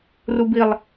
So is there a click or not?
no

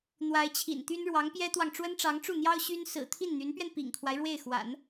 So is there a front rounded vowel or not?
yes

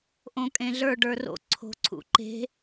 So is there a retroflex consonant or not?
yes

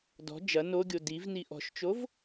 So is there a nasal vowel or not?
no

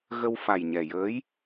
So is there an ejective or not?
no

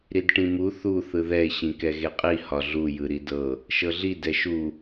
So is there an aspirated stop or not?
no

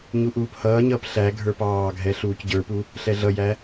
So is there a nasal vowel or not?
no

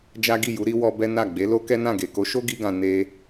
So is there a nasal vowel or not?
yes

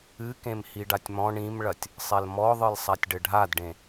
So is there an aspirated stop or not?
no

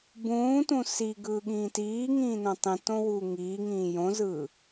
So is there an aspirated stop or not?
no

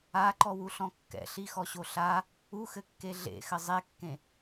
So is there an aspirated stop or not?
no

